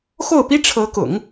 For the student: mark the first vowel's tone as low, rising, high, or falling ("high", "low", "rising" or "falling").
falling